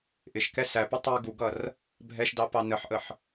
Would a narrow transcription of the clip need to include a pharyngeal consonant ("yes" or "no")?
yes